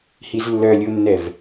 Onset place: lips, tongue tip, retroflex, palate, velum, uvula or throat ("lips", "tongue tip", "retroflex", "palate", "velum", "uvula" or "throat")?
throat